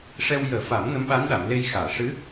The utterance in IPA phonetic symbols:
ʂ ɛ˧ w j əː˨˩˦ f a˨˩˦ m n ə˧˥ m ɓ a˧˥ n ɗ a˨˩˨ m l e˧ j x aː˨˩˨ ʂ ɨ˧˥

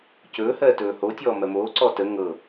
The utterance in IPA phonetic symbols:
c ɵː h ɜː t ɵː h o tʲ ɔː m ɜ m oː ǀ ɔ t ə ŋ ɤ

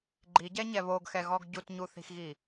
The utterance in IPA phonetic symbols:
ɡ͡ǃ i ɟ ɛ ɲ ɛ β o ɡ x ɛ ɣ ɔ ɡ ɟ u t ɲ u θ i̤ x ɣ i

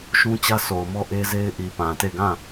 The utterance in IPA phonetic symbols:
ʃ ũ˦ t͡ɕ ä˦ sʰ o˨ ʊ̯ m ɔ˦ ʔ e˦ z e˦ ɪ̯ ʔ i˨ p ã˨ t e˦˨ ɡ ã˦˨

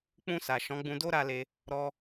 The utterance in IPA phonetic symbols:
k͡p ũ˧ s a˨ ʃ ɔ̃˨˦ ɡ͡b ũ˧ d o˦ ɾ a˧ l e˧ | ɾ ɔ˧

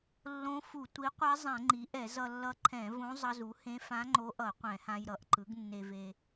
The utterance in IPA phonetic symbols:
lː õ˧˥ f u˧˩˧ tʷ i˩˥ qʷ a˧˥ zˤ ɛ̃˧˩˧ ŋ͡ǃ i˩˥ ʔ ɛ˧˩˧ z ʌ˧ lː ʌ˧˥ ǃʰ ɛ̃˧˩˧ v õ˧˥ zˤ ʌ˧ z u˩˥ h ẽ˧˥ f ã˧˥ ŋ͡ǃ o˧˥ ʔ ʌ˧˩˧ qʷ ɛ̃˧˩˧ h ã˧ j ɾ ʌ˩˥ ʔ ǃ ɯ˩˥ ɡ nː e˧ v e˧

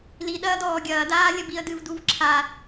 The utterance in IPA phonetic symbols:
l i ɗ ɐː d ɔː ɡʲ ɐː d aː lʲ ɐ b i ə̯ d ɨ v d u v ǁʰ a

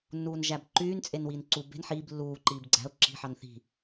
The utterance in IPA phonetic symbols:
nː uː n ʒ æ b ǃ yː n t͡sʼ e n w iː n ǀ u b e̤ n ħ iː b lː uː ǃ iː b ɡ͡ǀ æ̤ ʊ̯ ǁ i̤ ħ ɑ n θ i̤

